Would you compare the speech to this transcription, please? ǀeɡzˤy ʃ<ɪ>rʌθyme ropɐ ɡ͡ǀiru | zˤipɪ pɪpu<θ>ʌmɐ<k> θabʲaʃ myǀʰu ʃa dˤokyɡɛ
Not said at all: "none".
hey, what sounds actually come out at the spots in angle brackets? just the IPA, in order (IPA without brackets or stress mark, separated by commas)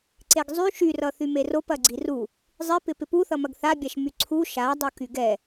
y, θ, ɡ